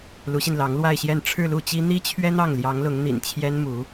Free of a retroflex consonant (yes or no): no